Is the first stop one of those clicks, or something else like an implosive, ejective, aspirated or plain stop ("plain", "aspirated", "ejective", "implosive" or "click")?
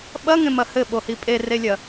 implosive